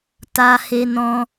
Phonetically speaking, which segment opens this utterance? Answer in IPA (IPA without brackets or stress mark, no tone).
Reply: t